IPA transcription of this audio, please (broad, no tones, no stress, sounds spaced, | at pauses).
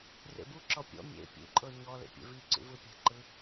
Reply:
r ḛ b u ǁ ɔ pʲ ɔ̰ mʲ ḛ pʲ ṵ ǃʼ ɤ ɲ ɔ l ḛ pʲ ḛ v i ǀ ṵ v ɯ pʲ ɛ̤ ǃ ɯ